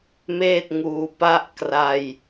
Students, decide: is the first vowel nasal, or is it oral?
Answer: oral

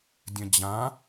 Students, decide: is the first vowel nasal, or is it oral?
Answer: nasal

